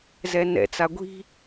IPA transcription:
z ɛ n ɛ̰ t͡s a ɡʷ i̤

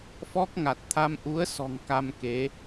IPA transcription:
f ɔ˦˥ k̚ ŋ a˨˩ t̚ t̪ʰ a˧ m ʔ u˨˦ ə̯ s ɔ̤˨˩ ŋ k a˧ m k e˨˦

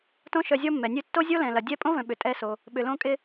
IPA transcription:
t õ˥ ʃ œ˧ zʲ ɔ˥ mː ɛ˩ nʲ ø˥ tː o˥ zʲ o˥ l ɛ̃˩ l ɐ˩ dʲ ɛ˥ pʼ õ˥ v œ̃˩ ɓ ʏ˩ tʼ ɛ˧ s o˩ | ɓ ʏ˩ l õ˧ kʼ ɪ˧

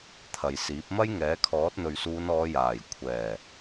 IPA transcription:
t̪ʰ ɐ˨ j s iː˨˥ p̚ m ɐ˥ j ŋ ɛː˨˥ kʰ ɔː˨˥ t̚ n̪ ɵ˨ ɥ s uː˨˧ n ɔː˨˧ j aː˨˩ j kʷʰ ɛː˨˩

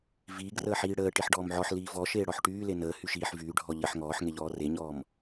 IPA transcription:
v iː ɡ r əː ħ iː ɽ əː ʈ i ħ ɖ ɔː m ʕ ɔ ħ l iː v ɔ ʃ eː ɽ ɔ ħ ʈ yː l e n əː h y ʃ iː ħ v yː ɖʱ ɔ ʎ ə ħ ŋ ɔː ħ ŋ e ʎ ɔː r e ɲ ɔː m

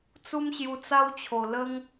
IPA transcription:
t͡s u˦ m ɕ j u˧ t͡s a˦ w t͡ɕʰ o˨˩ l ə˦ ŋ

